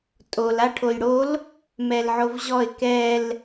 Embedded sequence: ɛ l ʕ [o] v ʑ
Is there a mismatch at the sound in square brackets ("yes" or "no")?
no